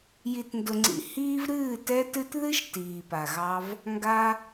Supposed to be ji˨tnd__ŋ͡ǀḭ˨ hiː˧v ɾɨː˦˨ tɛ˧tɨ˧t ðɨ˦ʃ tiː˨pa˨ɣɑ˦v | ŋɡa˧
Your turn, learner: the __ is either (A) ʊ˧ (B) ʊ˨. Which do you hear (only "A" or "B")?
B